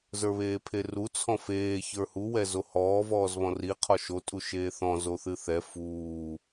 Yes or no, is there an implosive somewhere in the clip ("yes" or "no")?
no